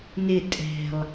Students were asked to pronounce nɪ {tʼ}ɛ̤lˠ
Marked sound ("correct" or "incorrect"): correct